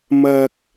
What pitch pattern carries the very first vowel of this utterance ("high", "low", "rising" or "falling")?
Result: high